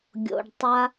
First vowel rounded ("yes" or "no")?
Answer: yes